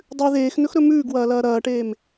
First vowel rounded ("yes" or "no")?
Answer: yes